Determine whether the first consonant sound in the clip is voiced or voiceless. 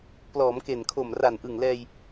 voiceless